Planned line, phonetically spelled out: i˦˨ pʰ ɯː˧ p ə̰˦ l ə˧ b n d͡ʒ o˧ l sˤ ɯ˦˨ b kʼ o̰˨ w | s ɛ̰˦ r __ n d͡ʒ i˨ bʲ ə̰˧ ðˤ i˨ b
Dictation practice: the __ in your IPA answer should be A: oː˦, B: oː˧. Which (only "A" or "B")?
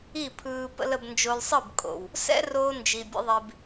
B